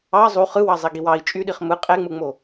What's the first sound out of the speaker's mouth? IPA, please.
ɑ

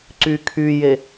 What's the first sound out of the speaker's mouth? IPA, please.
ǀ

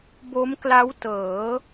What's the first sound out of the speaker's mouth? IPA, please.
b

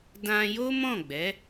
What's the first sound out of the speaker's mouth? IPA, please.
d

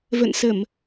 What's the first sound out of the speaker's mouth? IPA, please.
v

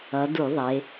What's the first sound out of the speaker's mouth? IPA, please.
ʌ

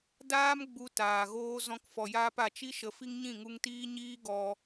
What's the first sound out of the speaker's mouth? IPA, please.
d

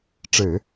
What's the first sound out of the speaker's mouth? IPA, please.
ʈ͡ʂ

